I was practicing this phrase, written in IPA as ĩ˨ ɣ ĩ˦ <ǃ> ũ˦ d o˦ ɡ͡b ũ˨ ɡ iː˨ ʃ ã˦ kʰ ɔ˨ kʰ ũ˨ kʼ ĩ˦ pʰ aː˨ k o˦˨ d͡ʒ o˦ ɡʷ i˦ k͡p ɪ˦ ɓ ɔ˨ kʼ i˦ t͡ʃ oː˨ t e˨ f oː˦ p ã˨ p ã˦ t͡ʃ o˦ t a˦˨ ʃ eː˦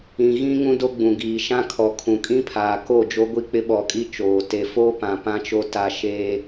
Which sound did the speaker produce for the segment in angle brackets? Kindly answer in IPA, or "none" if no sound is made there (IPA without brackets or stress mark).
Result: ŋ